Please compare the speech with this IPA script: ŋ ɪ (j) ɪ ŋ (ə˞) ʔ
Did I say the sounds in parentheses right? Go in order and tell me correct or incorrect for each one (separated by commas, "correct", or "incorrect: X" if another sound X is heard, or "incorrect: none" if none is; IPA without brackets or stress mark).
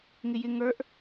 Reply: correct, correct